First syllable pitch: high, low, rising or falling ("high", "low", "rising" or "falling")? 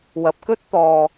low